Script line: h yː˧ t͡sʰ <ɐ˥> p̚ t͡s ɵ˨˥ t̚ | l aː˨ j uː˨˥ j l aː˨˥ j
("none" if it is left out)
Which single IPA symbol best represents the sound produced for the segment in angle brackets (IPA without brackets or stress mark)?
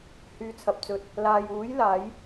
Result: ɐ˨